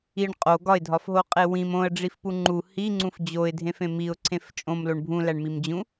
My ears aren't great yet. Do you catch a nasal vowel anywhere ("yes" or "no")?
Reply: yes